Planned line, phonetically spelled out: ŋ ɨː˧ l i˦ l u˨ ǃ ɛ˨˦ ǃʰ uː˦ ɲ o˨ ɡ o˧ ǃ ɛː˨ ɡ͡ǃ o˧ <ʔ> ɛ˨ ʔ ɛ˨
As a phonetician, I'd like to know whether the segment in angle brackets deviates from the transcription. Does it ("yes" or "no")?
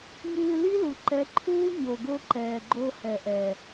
yes